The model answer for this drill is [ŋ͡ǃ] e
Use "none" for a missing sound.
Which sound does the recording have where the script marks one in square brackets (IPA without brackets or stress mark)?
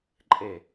ǃʼ